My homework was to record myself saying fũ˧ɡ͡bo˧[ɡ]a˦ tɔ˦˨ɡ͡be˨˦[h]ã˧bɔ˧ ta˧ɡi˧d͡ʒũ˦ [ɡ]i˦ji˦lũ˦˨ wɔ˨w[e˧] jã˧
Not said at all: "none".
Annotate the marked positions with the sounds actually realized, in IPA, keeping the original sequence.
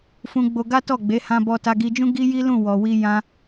ɡ, h, ɡ, i˧

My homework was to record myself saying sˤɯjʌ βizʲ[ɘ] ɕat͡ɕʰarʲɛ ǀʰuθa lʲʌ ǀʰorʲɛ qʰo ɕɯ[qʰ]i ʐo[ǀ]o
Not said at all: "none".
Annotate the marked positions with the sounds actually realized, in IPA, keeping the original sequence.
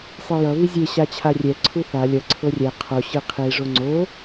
e, qʰ, ŋ͡ǀ

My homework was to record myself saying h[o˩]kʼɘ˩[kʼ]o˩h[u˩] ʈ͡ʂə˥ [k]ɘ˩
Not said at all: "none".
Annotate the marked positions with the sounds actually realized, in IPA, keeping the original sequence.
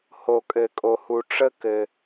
o˩, kʼ, u˩, k

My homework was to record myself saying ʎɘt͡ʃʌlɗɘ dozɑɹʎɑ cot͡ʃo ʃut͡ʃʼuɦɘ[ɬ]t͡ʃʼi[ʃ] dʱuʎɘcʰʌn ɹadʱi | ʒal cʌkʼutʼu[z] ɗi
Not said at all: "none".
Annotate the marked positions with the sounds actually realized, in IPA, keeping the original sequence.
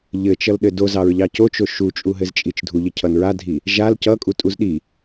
z, t͡ʃ, z

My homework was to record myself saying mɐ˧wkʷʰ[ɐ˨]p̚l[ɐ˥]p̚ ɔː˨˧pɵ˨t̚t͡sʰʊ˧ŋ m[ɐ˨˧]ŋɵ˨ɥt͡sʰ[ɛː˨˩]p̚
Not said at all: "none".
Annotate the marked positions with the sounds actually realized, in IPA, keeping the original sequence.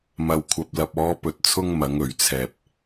ɐ˧, ɐ˧, ɐ˨˧, ɛː˧

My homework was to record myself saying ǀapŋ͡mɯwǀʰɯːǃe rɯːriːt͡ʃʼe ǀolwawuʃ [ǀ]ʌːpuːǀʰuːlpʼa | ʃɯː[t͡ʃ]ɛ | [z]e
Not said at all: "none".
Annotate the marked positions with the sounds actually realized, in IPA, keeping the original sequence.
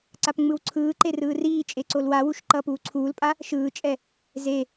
ǃ, t͡ʃʼ, z

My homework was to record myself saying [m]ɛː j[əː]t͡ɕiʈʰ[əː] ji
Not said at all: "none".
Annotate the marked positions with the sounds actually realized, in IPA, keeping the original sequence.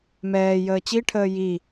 m, əː, əː

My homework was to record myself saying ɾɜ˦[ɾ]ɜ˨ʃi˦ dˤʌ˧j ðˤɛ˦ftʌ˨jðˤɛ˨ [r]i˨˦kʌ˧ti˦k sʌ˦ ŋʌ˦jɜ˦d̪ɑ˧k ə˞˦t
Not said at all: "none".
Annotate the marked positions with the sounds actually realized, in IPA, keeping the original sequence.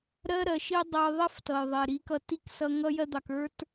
ɾ, ɾ

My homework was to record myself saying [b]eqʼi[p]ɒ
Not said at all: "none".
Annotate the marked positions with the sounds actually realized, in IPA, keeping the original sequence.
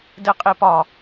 d, p

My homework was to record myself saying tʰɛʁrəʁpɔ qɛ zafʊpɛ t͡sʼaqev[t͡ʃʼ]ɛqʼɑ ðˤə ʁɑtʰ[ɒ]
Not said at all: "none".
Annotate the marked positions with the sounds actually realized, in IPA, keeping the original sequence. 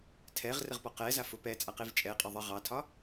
t͡ʃʼ, ɒ

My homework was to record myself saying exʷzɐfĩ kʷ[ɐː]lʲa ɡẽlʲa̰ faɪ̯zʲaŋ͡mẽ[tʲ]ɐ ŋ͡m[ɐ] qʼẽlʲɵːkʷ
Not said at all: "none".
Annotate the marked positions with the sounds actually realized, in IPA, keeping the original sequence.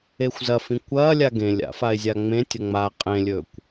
ɐː, tʲ, a

